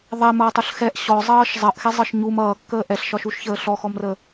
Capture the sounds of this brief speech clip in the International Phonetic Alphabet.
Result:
ðˤ ɛ m ʌː tˤ u ɬ x ɛ ʔ ɕ ɔ zˤ ʌː ʃ zˤ ʌ ʔ x ɛ zˤ ɤ ʃ ɲ u m ʌː kː əː ʔ ɛ ɬ ʃ ɒ ʃ u ʃ ç əː ɬ ɔ x ɔ m r əː

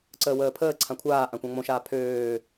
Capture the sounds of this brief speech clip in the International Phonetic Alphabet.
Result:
ǀ əː w əː pʰ əː ǀʰ ã kʷʰ aː ʔ ã kʷ ã ŋ͡m õ ʃ aː pʰ øː

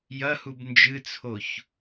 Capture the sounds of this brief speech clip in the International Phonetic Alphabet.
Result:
j ɐ h u b n d͡ʒ ɨ t͡sʰ o ç

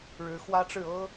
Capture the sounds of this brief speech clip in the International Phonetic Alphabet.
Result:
ɻ ɻ̩˧˥ x w ä˥ ʈ͡ʂ ɻ̩˥˩ ɤ˥

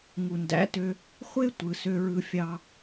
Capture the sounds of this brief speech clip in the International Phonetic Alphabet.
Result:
ŋ u˨ n d æ̰˨˦ t ø˧ | χʷ e˦ tʷ ɯ˨ s ø˧ ɹ ɯ˧ fʲ ɑ˧

